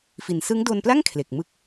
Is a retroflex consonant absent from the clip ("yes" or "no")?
yes